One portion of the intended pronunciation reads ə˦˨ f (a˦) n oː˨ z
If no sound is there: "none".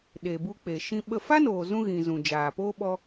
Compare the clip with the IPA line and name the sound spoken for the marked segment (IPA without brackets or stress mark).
a˦